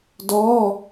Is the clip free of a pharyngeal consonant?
yes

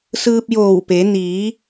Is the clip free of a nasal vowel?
yes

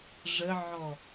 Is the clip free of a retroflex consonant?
no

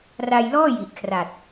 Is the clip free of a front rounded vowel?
yes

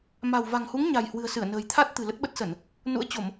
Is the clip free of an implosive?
no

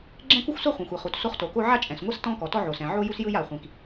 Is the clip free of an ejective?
no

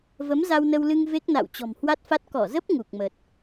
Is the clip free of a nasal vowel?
yes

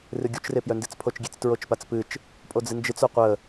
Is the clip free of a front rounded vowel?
no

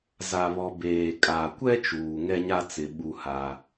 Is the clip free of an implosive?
no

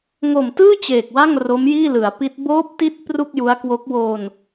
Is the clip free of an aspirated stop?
yes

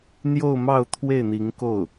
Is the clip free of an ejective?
yes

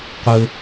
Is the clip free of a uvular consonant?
no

